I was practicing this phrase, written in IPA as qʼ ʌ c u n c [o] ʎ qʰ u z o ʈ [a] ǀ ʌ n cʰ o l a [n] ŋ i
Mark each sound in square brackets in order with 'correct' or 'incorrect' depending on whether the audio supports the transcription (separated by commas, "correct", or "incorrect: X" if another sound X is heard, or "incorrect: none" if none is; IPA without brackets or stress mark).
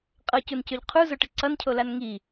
incorrect: ɵ, incorrect: ə, correct